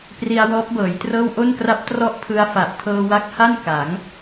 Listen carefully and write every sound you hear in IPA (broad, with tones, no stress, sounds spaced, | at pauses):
p r i˧ a̯ w ɔː˦˥ p̚ b ɤː˩˦ j t r ɤː˥˩ w ʔ o˥˩ n k r a˦˥ p̚ t r ɔ˥˩ ʔ pʰ ɯ˧ a̯ f a˨˩ ʔ tʰ ɤː˧ w a˦˥ k̚ h a˥˩ n k a˩˦ ŋ